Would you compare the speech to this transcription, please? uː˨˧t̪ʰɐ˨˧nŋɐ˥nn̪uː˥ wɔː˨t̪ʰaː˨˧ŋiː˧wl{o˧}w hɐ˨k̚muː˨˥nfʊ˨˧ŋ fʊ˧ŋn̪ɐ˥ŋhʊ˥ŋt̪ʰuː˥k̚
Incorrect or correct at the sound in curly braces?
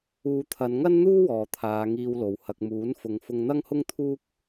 incorrect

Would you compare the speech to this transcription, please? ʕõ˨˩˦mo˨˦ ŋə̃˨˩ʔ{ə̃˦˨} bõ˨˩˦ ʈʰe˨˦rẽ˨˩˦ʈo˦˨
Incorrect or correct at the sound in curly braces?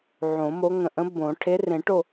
incorrect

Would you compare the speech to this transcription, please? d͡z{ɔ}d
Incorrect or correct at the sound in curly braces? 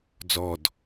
correct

